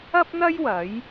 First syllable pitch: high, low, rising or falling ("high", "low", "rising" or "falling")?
high